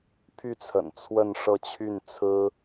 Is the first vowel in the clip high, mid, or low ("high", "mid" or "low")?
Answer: high